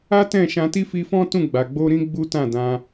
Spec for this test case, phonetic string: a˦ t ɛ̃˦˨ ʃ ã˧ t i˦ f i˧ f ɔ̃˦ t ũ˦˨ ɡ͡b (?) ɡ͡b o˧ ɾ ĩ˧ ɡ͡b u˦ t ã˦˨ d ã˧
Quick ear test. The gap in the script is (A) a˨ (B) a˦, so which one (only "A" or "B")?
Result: A